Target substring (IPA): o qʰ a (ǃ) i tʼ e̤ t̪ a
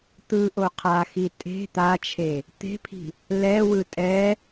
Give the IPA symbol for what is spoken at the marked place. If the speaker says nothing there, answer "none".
x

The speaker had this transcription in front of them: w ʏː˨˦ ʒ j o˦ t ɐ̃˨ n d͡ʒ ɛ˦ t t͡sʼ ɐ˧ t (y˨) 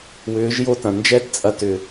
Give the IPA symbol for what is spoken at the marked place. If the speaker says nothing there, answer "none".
ʏ˨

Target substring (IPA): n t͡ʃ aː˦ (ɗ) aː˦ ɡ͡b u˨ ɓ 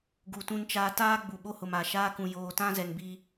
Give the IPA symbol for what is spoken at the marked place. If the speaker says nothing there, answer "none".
t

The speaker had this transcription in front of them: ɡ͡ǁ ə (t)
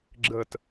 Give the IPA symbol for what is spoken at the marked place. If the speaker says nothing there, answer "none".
t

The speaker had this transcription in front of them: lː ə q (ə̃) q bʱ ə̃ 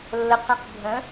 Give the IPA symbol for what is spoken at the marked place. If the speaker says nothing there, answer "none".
ə̃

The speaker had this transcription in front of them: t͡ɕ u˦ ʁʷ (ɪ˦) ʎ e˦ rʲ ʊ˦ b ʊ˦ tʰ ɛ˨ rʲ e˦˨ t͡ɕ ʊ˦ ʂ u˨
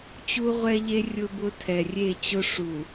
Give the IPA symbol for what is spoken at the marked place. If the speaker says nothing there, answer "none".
ɛ˦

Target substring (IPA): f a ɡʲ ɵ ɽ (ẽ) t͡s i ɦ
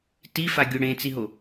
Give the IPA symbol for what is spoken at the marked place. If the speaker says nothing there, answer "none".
ẽ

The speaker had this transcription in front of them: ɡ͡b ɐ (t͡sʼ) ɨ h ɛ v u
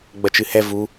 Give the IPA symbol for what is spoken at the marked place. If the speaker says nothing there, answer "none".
t͡ʃ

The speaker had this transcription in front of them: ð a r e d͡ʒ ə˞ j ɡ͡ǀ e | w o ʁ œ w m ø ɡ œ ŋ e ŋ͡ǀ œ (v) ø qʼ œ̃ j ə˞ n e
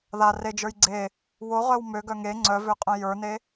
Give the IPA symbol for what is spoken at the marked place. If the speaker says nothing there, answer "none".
v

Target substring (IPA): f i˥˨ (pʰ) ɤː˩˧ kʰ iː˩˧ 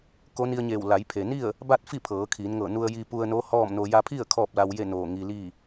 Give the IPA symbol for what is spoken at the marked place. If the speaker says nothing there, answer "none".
pʰ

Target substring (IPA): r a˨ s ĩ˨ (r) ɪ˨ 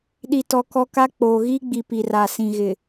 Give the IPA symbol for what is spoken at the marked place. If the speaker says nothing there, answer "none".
ɣ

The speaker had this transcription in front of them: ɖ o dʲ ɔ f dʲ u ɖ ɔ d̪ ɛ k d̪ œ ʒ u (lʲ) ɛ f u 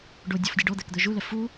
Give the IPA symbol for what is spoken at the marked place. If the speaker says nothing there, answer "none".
l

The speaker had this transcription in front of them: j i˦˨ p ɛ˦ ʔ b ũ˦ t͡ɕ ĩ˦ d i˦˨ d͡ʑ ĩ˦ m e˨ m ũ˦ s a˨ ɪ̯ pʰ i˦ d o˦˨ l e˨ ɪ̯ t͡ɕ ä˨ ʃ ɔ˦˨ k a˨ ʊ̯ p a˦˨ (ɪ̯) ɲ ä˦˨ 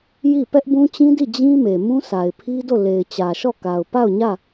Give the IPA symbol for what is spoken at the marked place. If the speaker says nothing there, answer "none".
ʊ̯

